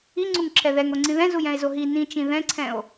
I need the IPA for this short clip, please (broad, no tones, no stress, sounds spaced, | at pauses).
i ŋ͡ǀ u ŋ ǁʰ ɛ ð ɛ ŋ o ŋ͡ǀ ĩ ð ɛ̃ z u j ɛ̃ e̯ z o ɦ i n ĩ t͡ʃ ĩ ð ɛ̃ ǀʰ ɛ̃ o̯